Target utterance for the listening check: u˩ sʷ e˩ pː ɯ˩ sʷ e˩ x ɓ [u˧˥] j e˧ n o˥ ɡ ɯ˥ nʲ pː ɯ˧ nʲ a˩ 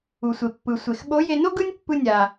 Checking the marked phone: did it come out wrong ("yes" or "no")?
yes